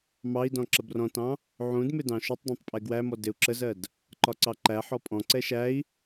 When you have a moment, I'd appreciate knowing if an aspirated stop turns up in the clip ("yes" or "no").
no